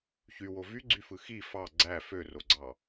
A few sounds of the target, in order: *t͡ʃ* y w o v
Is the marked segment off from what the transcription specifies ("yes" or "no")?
yes